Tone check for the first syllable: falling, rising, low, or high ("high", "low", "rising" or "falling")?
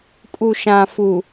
low